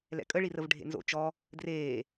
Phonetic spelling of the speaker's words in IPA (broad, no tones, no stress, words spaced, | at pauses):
lɛ̰kʼəɭirəv ɖʱḛnzo̰ t͡ʃɔ | dreː